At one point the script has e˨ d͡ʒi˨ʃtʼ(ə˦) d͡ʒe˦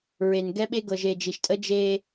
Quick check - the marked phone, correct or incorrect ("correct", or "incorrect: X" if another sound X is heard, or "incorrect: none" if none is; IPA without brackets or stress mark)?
correct